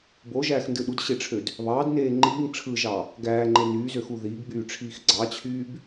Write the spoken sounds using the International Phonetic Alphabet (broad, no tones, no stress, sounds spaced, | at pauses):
b o ʒ æː x n d ɯ ɗ u d ɕ e ʈ͡ʂʰ ø d | β ɑː d n eː ŋ͡ǃ iː ŋ ʈ͡ʂʰ ɯ ʒ ɑ | ɡ æː ŋ͡ǃ e n yː z ø x u ð iː ɡ ɡ͡b yː ʈ͡ʂʰ iː x ɡ͡ǀ ɑ t͡ɕʰ yː b